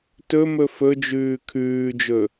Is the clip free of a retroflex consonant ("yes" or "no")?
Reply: yes